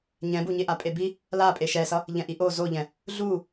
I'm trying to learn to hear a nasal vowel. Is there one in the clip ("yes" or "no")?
yes